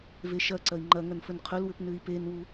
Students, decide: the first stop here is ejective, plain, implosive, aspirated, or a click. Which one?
click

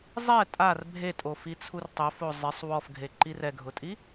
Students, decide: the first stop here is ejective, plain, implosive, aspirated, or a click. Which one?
ejective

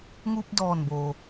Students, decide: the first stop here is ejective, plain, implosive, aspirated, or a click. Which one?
plain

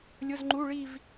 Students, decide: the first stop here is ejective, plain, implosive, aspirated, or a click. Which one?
click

